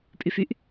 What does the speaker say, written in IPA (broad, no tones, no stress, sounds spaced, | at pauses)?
pʼ y f y ʔ